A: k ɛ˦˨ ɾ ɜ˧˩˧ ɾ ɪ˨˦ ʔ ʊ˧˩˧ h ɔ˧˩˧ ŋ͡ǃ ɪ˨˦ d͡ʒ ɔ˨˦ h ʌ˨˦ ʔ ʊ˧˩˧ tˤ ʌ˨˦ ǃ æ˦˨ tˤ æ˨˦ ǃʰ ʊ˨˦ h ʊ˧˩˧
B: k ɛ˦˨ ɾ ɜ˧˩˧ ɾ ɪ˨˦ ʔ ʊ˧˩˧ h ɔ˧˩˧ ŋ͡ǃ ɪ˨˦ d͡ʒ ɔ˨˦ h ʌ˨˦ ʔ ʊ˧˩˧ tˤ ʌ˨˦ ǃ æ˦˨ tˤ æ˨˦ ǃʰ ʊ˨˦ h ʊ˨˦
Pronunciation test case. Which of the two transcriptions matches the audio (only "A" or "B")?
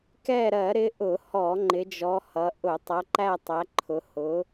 B